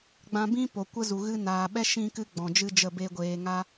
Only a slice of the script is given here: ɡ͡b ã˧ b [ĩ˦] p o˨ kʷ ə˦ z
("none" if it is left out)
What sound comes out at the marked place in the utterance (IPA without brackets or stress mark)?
ĩ˦